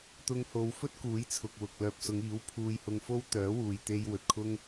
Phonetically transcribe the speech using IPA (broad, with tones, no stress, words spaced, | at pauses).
t̪ʊ˧ŋho˨˧wfɵ˥t̚kuː˨˥j t͡sʰʊ˨k̚wʊ˨k̚ lœː˨p̚sʊ˨˧ŋiː˨˥w pʰuː˧jhʊ˧ŋfo˥w t̪œː˨˥wuː˨jt̪e˧j wɵ˨t̚kʰʊ˥ŋ